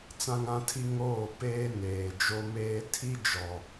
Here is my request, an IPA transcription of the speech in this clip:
t͡s ã˦ ŋ ã˦ tʰ i˦ ŋ oː˦˨ p eː˦ n eː˨ d͡ʒ o˦ m eː˦ tʰ i˦ d͡ʒ ɔ˨

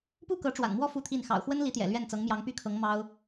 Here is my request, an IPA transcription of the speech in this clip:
p u˥˩ k ɤ˧˥ ʈ͡ʂ w a̰˨˩ n m w ɔ˥˧ f u˥˧ t̪ʰ i˥˩ n x ɑ̰˨˩ ʊ̯ x w ə˥ n l i˧˥ t̪ j ɛ̰˨˩ l ɥ ɛ˥˩ n t͡s ɤ˧˥ ŋ m j ɑ˧˥ ŋ p y˥ kʰ ɤ˧˥ ŋ m ɑ˥ ʊ̯

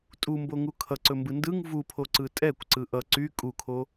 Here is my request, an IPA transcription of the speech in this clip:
tʼ u m b o ŋ u kʰ ʌ ǀ ɵ m b ɯ n d ɯ ŋ v u pʰ o ǀ ɯ tʼ ɛ kʷ ǀ ɯ ʔ ʌ ǀ y kʼ u kʰ o

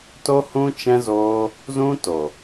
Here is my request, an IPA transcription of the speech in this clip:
t o˦ h ũ˦ t͡ʃ ɛ̃˦ z oː˦ | z ũ˦ t o˨

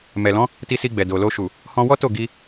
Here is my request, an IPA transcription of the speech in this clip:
m ɛ˨ l ɔ̃˨˦ | t i˧ s i˧ ɡ͡b ɛ˨ d o˨ l o˧ ʃ u˨ | h ɔ̃˧ w ɔ˦ t o˦˨ ɡ i˧

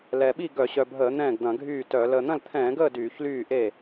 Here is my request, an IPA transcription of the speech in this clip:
l ɛ˨˩ ɓ i˥˩ ɡ œ˧˩˧ ɕ œ˨˩ bʱ əː˧˩˧ n̪ ɛ̃ː˥˩ ɡ d̪ ɐ̃˧˩˧ ɡʱ yː˥˩ t œ˧˩˧ l əː˨˩ n̪ ɐ̃˥˩ l t̪ʰ ɛ̃ː˧˩˧ ɡ əː˥˩ d yː˧˩˧ ç l yː˥˩ ʔ e˥˩

